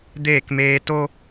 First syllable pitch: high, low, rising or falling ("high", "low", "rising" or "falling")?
falling